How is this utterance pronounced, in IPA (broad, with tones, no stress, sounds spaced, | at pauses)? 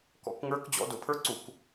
k ɔ̰˧˥ k ŋ ə˞˧˥ k d͡ʑ ɔ̰˧˥ d ʊ˧˩˧ pʰ ə˞˧˥ ǀ u˧˩˧ k